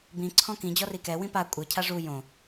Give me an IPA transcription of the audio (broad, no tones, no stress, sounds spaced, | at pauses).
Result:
b ĩ ǀʰ ɔ̃ k ĩ d͡ʑ ɔ r i k ɛ w ĩ p a kʷʼ ɪ cʰ a ʐ u j õ